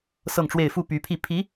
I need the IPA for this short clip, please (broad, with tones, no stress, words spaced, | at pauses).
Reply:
sɤ˥˧ŋʈ͡ʂwe˥˧ɪ̯ fu˥˩py˧˥pʰi˥˩ pʰi˧˥